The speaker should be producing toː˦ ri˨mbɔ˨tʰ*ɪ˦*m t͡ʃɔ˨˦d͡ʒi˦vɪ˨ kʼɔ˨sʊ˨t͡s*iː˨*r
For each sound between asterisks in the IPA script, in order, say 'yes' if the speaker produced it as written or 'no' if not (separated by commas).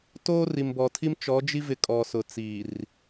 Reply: no, yes